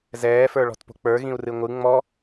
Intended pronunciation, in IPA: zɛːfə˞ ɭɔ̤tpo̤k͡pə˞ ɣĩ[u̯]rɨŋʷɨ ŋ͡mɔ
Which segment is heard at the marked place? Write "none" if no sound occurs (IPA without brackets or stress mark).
u̯